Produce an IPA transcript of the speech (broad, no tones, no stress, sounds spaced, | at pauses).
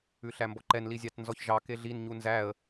ʉ ɬ æ m b ɔ ǃ ɛ n l i zʲ ɑ t n z ɔ ç ʒ ɑ k e ɮ i n ɲ u n z æ ə̯